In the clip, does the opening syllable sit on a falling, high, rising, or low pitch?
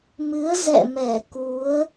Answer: rising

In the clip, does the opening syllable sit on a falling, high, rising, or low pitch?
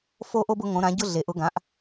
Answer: high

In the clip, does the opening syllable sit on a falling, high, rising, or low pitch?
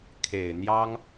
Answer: low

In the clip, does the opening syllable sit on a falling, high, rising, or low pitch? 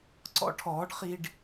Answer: high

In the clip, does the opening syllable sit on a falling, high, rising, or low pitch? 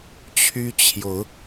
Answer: high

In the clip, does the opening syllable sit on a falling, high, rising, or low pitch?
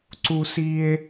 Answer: high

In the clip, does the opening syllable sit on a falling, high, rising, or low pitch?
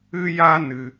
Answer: high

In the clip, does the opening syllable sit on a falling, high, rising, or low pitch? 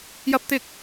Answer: high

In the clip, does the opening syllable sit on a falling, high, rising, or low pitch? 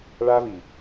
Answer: high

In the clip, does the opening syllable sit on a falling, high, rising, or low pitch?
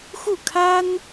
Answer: falling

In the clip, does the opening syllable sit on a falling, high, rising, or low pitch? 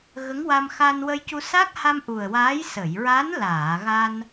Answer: rising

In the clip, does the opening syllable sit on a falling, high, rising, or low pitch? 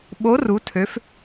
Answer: rising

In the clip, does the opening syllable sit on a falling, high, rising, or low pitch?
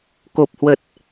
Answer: low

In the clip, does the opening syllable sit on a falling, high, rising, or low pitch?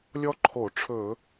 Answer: high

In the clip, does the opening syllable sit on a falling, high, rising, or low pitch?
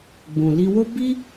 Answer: low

